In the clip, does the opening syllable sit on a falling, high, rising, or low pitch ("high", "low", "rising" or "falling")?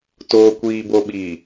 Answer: low